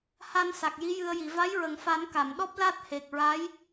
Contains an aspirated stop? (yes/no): no